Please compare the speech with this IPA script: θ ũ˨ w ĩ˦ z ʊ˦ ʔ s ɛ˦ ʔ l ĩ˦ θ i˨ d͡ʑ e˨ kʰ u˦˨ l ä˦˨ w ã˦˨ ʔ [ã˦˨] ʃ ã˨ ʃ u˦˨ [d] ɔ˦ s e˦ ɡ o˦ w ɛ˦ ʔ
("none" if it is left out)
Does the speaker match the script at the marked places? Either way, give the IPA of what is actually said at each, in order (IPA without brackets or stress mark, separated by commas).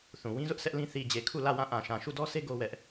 ã˨, d